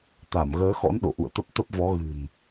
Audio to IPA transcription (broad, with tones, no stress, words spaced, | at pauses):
t̪a˧˩m ɣəː˨˦xɔ̰˧˥n ɗo̰˧˨ʔṵ˧˨ə̯t̪ə˦˥p̚ t̪ə˦˥p̚vɔ˨˦ ɣɨ̤˨˩n